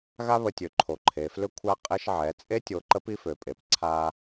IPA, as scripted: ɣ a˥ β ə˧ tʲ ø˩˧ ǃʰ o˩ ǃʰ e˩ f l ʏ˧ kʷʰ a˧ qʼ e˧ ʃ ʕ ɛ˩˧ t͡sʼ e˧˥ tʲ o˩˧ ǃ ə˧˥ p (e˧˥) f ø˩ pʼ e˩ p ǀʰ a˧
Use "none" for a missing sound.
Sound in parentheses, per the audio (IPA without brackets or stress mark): i˧˥